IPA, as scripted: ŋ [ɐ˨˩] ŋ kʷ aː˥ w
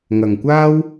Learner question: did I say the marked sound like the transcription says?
yes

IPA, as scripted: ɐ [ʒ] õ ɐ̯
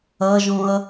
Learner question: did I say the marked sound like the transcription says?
yes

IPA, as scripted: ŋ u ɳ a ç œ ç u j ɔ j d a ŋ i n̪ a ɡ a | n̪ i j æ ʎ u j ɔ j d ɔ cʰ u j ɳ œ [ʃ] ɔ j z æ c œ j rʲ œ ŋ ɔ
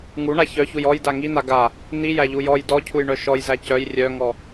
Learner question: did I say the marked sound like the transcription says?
yes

